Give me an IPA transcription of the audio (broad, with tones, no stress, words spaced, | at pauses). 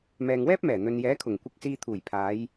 mɛː˨ŋwɛː˥p̚mɛː˨˩ n̪ɵ˨njɛː˨˥kʰʊ˨˩ŋ kʷɪ˧k̚siː˧t̪ʰuː˨˩jpʰaː˨˧j